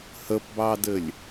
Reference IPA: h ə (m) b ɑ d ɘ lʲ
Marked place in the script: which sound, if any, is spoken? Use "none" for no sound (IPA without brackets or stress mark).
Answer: p